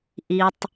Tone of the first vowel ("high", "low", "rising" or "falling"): high